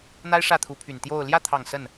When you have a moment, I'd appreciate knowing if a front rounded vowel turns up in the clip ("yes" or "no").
yes